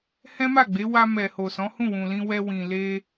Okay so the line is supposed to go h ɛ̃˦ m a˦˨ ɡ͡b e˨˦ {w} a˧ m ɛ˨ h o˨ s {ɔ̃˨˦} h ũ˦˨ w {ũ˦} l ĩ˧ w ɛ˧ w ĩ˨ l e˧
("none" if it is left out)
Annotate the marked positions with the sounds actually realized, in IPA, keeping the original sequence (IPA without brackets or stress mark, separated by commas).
w, ɔ̃˨˦, ũ˨